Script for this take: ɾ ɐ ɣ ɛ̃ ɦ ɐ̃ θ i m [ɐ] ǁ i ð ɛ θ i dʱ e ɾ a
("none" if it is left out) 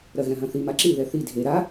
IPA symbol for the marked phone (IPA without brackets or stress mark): a